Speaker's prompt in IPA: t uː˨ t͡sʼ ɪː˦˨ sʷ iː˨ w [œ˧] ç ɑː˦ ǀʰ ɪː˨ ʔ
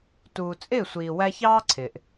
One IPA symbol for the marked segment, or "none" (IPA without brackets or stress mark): æ˧